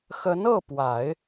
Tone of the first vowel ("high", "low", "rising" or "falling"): rising